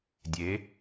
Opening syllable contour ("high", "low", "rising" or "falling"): rising